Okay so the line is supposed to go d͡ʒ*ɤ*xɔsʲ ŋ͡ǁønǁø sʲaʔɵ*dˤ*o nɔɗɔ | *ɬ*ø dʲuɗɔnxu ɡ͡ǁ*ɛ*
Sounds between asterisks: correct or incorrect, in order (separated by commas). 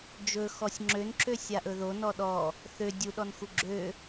incorrect, incorrect, incorrect, incorrect